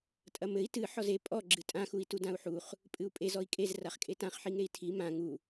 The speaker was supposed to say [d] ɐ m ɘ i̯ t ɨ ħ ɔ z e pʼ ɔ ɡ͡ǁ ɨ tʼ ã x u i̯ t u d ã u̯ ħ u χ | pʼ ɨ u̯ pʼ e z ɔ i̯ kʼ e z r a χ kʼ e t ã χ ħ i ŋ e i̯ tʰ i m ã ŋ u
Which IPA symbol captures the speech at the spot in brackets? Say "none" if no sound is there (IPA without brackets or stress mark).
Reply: tʼ